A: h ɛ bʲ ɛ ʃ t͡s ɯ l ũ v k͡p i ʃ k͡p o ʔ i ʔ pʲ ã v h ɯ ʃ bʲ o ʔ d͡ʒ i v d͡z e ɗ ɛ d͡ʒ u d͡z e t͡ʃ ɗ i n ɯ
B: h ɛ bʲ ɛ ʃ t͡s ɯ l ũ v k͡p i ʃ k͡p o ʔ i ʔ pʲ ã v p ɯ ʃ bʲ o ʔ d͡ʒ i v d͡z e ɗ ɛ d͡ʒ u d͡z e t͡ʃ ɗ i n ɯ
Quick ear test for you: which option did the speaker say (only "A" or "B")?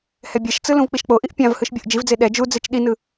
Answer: A